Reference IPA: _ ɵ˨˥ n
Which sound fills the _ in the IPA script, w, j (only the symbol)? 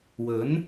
w